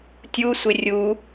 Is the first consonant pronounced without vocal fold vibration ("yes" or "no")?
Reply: yes